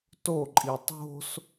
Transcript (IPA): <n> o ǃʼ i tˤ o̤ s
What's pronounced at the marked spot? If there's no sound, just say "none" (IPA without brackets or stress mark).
t